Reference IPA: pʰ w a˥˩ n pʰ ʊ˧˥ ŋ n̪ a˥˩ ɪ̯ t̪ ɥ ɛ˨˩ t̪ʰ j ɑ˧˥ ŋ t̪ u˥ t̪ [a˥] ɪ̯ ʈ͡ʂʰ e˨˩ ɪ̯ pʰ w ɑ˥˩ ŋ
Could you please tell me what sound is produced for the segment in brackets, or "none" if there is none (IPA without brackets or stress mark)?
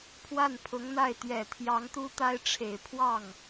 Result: a˥